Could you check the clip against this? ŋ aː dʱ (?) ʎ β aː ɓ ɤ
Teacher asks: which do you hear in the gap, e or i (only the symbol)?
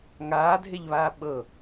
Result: e